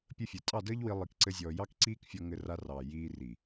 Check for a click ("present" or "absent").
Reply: present